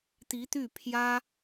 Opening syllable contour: rising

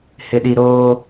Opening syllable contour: low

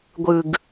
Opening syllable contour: low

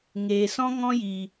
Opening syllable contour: low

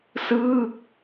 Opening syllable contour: falling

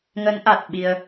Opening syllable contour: rising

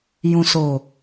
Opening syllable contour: low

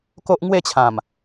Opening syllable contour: high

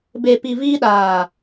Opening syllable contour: low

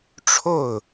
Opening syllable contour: falling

